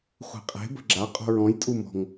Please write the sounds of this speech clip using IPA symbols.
χʷ e̤ qʼ e̤ b ə̤ ɡ͡ǁ a qʼ o̤ ɹ ɔ̃ j tʼ u m ɔ̤ ŋ

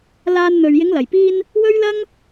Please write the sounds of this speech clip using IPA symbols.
l aː˧ n n̪ ɵ˨ ɥ j ɪ˨˧ ŋ l ɐ˨˩ j p iː˧ n | w ɵ˥ ɥ l ɐ˥ ŋ

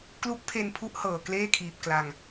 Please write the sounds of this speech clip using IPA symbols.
k l u˦˥ k̚ pʰ e˧ n pʰ u˦˥ ʔ h ɤː˨˩ k l eː˥˩ kʰ iː˨˩ p̚ k l a˧ ŋ

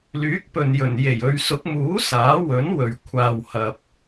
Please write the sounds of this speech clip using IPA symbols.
l yː˨˥ k̚ p ɵ˨ n j ɵ˨˩ n j e˨˩ j ɵ˨˧ ɥ s ʊ˨˥ k̚ m uː˨˥ s aː˨˥ w ɵ˨˥ n w ɵ˨ ɥ kʷʰ aː˨ w h ɐ˨ p̚

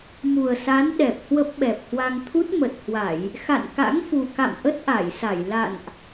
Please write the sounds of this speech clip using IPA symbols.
m u˨˩ ə̯ s a˨˦ n ɗ ɛ˨˩ p̚ h w ə˦˥ p̚ ɓ ɛ˨˩ p̚ h w a˧ ŋ t̪ʰ u˦˥ t̚ m ə˨˩ t̚ h w a˧˩˨ j | x a̰˧˨ n k a̰˧˥ ŋ f u˨˩ k a̰˧˨ m ʔ ə˦˥ t̚ ʔ a˧˩ j s a˧˩ j l a̰˧˨ n ʔ

